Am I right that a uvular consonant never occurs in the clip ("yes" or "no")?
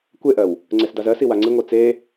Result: yes